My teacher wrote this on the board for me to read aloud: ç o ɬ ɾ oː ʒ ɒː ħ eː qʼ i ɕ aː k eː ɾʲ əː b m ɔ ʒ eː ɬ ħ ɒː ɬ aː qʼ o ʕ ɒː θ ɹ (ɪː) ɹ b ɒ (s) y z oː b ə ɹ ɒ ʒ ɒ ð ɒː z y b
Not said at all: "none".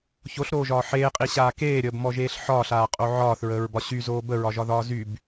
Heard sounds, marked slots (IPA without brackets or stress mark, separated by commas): əː, ɕ